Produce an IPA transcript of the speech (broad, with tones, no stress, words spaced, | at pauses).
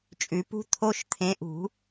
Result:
t͡ʃʼʉ˨˩˦pṳ˦˥ t̪ʰo˦˥ʃ t̪ʰẽ˨˥ʔṳ˨˩˦